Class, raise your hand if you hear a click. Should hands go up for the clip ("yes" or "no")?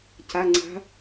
yes